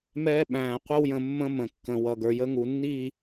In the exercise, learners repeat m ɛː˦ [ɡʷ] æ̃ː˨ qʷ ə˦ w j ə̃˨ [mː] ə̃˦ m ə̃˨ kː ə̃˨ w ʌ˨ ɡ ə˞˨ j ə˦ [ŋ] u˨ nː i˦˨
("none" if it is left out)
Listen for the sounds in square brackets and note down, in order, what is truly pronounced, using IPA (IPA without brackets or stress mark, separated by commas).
ɓ, mː, ŋ